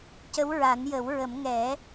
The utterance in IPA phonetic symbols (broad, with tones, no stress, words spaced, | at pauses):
cə˧˥wɹa˨˩˦njə˨˩˦wɹə˨˩˦m ŋɛ˨˩˦